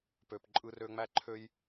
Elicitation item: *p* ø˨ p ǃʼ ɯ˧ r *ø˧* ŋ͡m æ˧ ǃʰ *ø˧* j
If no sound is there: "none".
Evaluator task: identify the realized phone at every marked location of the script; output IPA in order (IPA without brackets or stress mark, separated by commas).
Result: p, ø˧, ø˧